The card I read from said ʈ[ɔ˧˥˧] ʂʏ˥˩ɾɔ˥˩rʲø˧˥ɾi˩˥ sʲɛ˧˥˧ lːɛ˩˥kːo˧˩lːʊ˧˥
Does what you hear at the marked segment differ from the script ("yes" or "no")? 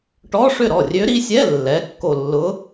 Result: no